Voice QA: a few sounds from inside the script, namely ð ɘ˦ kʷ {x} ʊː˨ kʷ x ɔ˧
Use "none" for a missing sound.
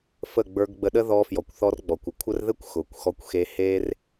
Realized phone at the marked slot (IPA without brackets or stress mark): x